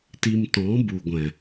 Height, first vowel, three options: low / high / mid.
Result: high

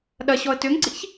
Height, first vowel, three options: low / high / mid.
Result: low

